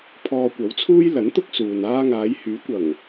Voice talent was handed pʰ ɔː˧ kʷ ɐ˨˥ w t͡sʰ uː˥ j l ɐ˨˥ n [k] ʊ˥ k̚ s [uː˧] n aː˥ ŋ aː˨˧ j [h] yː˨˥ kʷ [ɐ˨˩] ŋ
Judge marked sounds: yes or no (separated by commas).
no, no, yes, yes